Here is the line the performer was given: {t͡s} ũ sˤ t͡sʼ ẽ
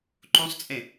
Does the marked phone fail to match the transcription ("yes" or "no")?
yes